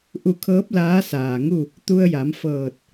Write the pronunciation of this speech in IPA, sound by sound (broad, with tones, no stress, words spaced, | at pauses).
ʔu˧˩kʰɤː˧˥p̚ laː˧˥saː˩ ŋu˥˨ | t̪u˧ə̯ja˩˧m fɤː˧˩t̚